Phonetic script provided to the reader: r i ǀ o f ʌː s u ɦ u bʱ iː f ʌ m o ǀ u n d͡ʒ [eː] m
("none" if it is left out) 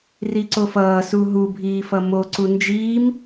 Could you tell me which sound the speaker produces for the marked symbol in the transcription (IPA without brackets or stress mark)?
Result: iː